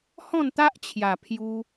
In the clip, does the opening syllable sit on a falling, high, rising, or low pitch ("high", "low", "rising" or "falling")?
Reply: falling